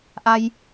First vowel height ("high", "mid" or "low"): low